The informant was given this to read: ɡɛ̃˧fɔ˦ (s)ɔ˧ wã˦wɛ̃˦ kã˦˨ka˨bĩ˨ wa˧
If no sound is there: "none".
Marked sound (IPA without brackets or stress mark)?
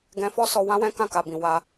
s